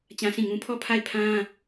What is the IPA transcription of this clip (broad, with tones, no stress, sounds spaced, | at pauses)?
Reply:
t͡ɕ ã˦ s ĩ˦˨ ŋ ũ˦ pʰ ɔ˦˨ pʰ a˦˨ ɪ̯ pʰ ã˦